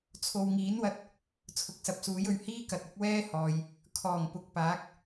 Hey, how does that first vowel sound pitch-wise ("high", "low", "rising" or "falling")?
low